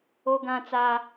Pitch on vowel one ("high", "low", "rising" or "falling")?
high